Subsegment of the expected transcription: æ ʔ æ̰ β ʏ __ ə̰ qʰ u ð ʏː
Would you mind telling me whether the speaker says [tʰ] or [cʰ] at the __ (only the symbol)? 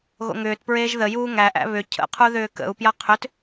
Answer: cʰ